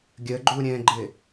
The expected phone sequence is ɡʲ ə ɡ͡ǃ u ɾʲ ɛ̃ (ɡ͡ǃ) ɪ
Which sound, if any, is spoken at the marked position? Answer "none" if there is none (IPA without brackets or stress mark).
ɡ͡ǃ